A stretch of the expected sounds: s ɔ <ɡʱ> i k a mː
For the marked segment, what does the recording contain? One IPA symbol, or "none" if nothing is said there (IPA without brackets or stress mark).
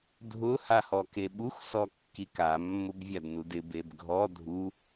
kː